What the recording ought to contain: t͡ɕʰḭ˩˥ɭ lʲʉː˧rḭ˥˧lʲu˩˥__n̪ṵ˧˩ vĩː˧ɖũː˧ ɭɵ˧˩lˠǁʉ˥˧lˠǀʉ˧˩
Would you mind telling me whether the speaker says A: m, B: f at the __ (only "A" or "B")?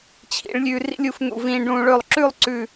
B